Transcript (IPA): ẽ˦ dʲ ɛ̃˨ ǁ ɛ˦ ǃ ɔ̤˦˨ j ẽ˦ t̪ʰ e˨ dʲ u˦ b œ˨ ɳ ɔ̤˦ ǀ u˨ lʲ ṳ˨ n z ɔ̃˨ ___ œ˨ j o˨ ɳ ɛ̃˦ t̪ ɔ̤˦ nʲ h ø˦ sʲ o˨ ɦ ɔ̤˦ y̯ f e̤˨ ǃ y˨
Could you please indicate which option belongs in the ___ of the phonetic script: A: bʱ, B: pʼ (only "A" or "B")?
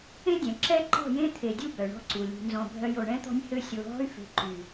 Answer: A